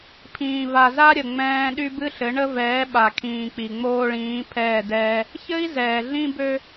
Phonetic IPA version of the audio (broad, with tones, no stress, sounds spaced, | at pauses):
pʰ ĩː˨ v a˨ z a˦ ɾʲ ə˨ ŋ͡m ɛ̃ː˦ ɗ y˦ b ɨ˦ ɬ ɘ˨˦ ɳ ə˦ v ɛː˨˦ ɓ a˨ kʰ ĩː˨ k͡p i˨ ŋ͡m oː˦ ɭ ĩː˨˦ pʰ ɛː˦˨ d ɛː˦ | ç ɘ˦ i̯ z ɛː˨ ɮ ĩ˦ b ø˦